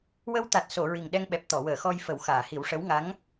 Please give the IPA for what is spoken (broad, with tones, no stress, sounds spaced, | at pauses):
w ə˧ w t̪ a˨˩ t̚ s o˨˩˨ ɹ i˨˩ ŋ ɗ ɛ˧ ŋ ɓ ɛ˨˩ p̚ t̪ ɔ˨˩˨ w əː˨˩˨ x ɔ˧ j f ə˨˩˦ w x aː˨˩˨ h i˨˩˦ w ʂ ə˧˥ w ŋ a˧˥ ŋ